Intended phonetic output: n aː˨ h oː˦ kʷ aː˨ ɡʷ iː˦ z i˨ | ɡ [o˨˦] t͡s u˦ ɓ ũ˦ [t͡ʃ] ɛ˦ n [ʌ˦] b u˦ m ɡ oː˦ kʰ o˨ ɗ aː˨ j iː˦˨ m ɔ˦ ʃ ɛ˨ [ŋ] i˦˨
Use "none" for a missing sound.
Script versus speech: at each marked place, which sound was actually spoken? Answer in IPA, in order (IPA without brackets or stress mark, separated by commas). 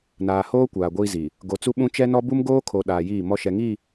o˨˦, t͡ʃ, ɔ˦, ŋ